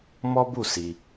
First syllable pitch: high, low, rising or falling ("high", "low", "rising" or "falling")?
high